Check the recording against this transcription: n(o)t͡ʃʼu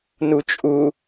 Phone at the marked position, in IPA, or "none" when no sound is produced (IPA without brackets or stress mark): u